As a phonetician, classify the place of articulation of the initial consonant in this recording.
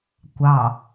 velar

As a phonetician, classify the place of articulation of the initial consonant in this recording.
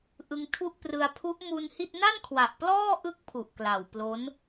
glottal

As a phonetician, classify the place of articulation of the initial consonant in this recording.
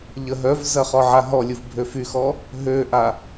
palatal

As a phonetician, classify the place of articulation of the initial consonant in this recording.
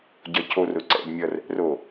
palatal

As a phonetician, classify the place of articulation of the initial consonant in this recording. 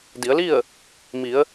alveolar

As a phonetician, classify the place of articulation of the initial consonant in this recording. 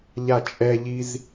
palatal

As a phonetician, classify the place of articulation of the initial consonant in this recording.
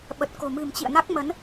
labial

